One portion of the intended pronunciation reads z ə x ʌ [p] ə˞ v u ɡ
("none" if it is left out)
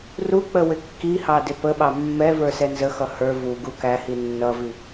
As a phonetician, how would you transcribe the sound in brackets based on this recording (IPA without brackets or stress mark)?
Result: h